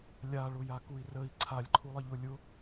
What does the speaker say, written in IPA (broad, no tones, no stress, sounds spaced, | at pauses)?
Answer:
lʲ a ɭ ʊ j a k u i̯ r ə i̯ ǀʰ a lʲ ǃʰ u lˠ ə ʎ ʊ lʲ ʊ